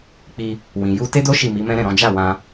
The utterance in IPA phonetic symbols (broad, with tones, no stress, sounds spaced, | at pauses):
k͡p i˧ | w ĩ˨ j u˧ t e˦ d o˦ ʃ i˦˨ m i˨˦ m ɛ̃˦ ɾ ɛ̃˦˨ ɾ ɔ̃˨˦ d͡ʒ a˦˨ w ã˧